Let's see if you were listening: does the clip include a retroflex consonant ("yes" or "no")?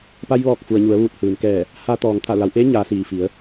no